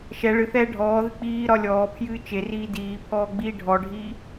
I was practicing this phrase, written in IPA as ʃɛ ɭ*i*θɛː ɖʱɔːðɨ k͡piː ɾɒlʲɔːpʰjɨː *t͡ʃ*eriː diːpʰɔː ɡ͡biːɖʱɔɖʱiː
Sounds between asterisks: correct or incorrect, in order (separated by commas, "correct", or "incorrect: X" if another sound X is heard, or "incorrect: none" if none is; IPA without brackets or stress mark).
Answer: incorrect: ɨ, correct